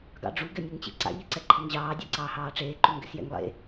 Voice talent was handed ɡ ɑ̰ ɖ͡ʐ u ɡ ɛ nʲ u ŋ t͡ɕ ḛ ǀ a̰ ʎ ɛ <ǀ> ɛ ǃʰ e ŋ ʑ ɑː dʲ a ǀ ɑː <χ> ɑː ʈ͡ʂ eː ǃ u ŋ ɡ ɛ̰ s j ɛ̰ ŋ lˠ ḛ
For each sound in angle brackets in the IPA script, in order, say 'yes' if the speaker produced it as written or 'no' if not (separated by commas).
yes, no